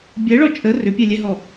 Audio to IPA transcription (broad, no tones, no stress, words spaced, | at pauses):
bʲɛɭɔ t͡ʃʼə rʏpʲɛlʲɛɦɔ